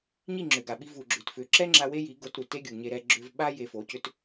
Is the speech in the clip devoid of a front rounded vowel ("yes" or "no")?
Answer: no